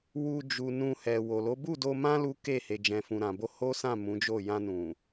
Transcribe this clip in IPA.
wu˧ d͡ʒu˨ nũ˧hɛ˨ wo˨lo˨˦ bu˦˨do˧mã˦ lu˦ ke˦˨he˨ d͡ʒɛ̃˨fũ˨ɾã˨bo˧ ho˦sã˦˨ mũ˨˦d͡ʒo˦˨ jã˧nũ˨

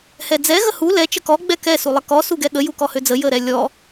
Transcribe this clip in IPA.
hɛd͡zɛ ɣəhu lɛ t͡ʃəkɔ ɡ͡bɛkɛ sulˠəkɔ suɡɛɠə jukɔhød͡zə jəɾɛlʲɔ

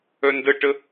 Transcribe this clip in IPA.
œndəʈə

